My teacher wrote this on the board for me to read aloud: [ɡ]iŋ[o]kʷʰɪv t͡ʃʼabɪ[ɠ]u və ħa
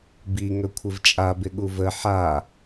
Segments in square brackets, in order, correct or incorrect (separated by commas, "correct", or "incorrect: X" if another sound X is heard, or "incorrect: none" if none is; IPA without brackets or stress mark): incorrect: b, incorrect: ɵ, correct